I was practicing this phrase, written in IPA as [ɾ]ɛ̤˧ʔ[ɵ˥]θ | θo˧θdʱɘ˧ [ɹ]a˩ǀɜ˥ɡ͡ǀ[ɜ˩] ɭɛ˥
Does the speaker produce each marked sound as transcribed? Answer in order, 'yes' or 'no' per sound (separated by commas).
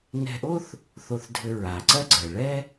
no, no, yes, yes